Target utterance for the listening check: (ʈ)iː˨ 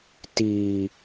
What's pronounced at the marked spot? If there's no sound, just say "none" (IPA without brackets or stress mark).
t